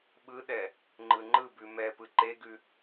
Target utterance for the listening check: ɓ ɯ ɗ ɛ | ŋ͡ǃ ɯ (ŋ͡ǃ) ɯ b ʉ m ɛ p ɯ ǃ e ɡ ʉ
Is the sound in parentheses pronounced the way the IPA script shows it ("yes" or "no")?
yes